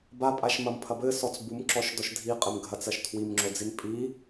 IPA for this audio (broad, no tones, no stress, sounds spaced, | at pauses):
b a pʼ a ʃ m ɐ m pʰ ɐ b ɘ s ɔ t͡s b u m ǁ ɔ ʃ d ɔ ʃ dʱ i qʼ ɘ m ɡʱ ɐ t͡s ɐ ʃ tʰ w i m ŋ͡ǁ o d͡z i n pʼ i